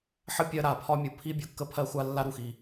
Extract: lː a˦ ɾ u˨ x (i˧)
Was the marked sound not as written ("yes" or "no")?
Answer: yes